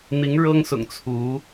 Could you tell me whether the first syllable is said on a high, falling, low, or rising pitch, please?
rising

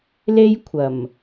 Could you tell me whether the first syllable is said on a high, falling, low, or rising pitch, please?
high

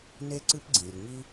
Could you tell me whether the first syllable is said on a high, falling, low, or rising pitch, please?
high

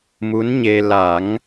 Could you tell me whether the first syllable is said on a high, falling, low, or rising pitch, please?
rising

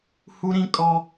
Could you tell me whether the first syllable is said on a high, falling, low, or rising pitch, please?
high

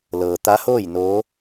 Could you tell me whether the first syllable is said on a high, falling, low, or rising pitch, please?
low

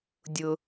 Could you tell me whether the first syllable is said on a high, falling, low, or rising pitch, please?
low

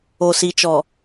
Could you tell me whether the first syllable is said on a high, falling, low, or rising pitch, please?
low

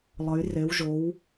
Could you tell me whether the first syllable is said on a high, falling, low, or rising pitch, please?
rising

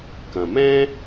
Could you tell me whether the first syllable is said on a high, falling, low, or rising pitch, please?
low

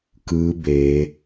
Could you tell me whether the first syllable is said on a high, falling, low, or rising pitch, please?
rising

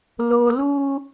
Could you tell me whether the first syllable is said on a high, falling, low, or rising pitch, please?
low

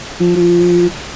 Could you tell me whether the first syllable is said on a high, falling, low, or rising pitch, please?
low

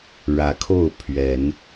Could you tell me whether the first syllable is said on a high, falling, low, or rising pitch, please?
rising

